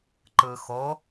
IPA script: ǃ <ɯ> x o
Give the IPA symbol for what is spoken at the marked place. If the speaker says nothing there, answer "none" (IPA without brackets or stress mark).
ɯ